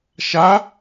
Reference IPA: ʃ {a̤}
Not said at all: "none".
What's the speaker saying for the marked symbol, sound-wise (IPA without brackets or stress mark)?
a